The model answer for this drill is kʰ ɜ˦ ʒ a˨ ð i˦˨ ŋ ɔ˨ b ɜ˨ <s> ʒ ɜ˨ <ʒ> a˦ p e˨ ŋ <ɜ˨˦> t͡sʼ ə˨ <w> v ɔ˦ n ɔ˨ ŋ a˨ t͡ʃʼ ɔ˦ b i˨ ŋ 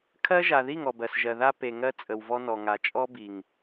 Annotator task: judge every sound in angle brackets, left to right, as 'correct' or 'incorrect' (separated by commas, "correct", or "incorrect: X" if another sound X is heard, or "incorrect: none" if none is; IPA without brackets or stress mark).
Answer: correct, incorrect: ð, incorrect: ɜ˦, correct